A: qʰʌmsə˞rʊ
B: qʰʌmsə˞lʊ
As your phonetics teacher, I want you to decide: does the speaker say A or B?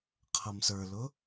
B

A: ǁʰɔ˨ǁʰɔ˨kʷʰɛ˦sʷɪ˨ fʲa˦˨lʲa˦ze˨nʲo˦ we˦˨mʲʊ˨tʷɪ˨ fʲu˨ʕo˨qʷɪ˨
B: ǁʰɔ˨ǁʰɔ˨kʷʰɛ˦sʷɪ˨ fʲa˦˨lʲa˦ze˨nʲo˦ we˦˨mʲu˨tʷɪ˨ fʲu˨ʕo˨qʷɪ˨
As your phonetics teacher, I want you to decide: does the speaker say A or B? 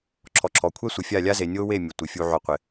A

